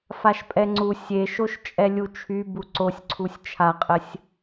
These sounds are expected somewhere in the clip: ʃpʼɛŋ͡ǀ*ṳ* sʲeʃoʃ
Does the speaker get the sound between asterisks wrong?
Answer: yes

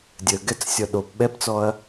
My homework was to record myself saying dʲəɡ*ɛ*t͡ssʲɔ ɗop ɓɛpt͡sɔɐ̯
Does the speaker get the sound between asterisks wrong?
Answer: no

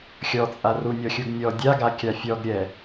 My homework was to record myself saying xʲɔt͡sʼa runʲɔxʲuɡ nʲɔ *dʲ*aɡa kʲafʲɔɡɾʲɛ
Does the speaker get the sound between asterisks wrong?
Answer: no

